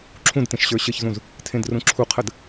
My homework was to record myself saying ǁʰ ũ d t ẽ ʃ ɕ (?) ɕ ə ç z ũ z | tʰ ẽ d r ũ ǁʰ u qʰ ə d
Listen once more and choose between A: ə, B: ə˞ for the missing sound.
B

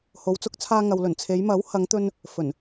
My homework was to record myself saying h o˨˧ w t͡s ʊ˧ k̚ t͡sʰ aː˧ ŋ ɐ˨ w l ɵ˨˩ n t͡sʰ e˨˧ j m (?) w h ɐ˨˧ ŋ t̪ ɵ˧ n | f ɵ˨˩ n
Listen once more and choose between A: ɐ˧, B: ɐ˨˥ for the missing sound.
B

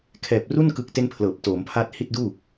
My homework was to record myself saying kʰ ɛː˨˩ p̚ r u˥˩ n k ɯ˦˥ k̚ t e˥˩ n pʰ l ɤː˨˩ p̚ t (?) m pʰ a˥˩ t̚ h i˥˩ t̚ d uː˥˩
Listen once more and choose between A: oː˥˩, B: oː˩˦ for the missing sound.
B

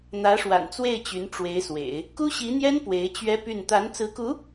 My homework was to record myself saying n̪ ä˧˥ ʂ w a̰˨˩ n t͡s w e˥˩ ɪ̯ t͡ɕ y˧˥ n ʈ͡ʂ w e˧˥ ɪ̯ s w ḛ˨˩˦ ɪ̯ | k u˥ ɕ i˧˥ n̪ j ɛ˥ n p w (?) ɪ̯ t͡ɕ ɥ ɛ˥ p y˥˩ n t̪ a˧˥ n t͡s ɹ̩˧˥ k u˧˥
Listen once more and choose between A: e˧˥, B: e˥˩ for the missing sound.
A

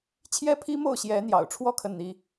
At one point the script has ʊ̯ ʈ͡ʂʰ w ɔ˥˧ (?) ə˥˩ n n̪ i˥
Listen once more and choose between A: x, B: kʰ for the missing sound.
B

